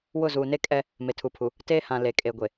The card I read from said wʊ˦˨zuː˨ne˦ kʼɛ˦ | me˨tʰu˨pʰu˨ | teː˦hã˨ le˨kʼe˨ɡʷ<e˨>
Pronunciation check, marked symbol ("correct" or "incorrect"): correct